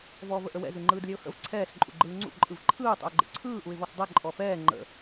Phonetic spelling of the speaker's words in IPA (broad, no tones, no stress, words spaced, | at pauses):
vɔːvəʔəwɛ̰ zɯŋ͡ǃɯːdlʲɛʊ̯hə̰v ǀʰɛːs ǃʼṵɡ͡ǃɯːŋ͡ǀṵ ǃʼɯvǃʰɯː tˤə̰ʊ̯ɡ͡ǃə̰ǀʰɯː ʔuɪ̯vɔsdˤɛ ǃʼɔfɛː ŋ͡ǃə̰